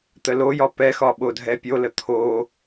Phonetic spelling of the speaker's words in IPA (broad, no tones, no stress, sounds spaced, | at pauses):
t̪ ə l o j ɒ p ɛ x ɒ ɓ o dʱ ɛ pʲ o l ə t̪ʰ o